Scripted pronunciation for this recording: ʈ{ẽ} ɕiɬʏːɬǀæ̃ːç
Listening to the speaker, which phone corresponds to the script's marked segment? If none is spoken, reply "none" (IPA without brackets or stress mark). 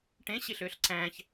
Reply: ẽ